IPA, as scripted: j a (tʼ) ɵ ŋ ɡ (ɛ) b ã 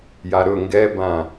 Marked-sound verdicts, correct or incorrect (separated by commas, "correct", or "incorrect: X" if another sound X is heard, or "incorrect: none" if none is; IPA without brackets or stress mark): incorrect: ɾ, correct